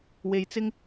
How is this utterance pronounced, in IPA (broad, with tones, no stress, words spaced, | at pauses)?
we˧jt͡sɪ˥ŋ